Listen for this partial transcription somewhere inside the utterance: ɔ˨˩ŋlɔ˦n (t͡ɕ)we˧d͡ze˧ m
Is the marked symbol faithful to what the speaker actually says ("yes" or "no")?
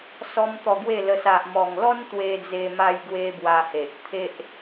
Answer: no